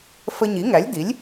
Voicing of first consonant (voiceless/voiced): voiceless